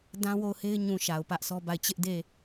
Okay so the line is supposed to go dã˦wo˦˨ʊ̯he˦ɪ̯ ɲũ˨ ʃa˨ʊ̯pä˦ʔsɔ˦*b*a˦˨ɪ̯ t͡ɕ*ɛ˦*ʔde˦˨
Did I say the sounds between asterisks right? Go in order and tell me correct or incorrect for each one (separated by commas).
correct, incorrect